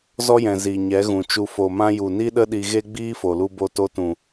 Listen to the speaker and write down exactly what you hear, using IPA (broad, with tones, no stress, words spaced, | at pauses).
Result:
zɔ˦jɛ̃˨ zi˨ɲɛ˨˦ɣũ˨t͡ʃu˧ fo˨mã˧ju˨ ni˦ɗə˦ ɗi˧ɣe˦ ɡ͡biː˦fo˨lu˧bo˧ to˧tũ˨